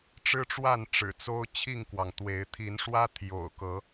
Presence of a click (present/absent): absent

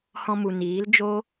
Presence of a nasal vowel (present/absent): present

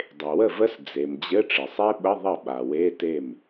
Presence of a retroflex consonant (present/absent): present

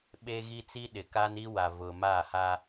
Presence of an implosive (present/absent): present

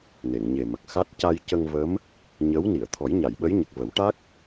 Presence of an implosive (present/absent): present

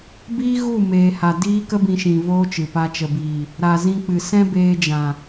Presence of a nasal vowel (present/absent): present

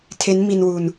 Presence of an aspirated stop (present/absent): present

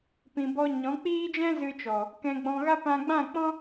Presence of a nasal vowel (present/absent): present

